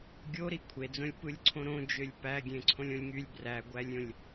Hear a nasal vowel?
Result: yes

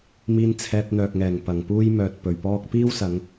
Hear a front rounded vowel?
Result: yes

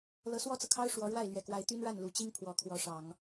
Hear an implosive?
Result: no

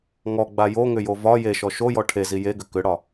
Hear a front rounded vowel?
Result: yes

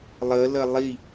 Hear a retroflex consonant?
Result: no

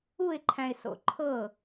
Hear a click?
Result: yes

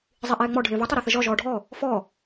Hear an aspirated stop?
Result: no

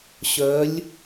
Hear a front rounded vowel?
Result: yes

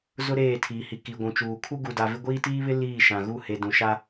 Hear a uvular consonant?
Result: no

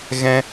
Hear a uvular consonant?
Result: no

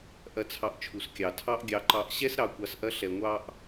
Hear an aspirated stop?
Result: yes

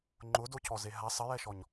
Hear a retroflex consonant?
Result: no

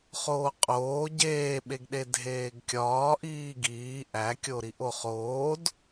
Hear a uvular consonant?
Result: yes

